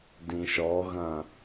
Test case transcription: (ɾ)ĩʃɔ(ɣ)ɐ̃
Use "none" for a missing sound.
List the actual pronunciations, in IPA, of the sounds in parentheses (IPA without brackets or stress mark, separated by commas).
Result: d, ɣ